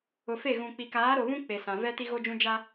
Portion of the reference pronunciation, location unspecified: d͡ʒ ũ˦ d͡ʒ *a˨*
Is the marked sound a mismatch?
yes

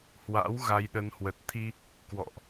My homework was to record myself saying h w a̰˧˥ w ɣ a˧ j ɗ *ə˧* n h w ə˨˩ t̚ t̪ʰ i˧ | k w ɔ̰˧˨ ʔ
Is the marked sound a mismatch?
no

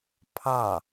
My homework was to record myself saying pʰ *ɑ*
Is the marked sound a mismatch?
no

